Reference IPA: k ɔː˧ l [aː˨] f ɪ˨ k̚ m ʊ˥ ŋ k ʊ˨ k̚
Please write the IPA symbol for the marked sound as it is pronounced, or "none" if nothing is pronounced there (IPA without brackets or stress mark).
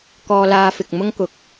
aː˧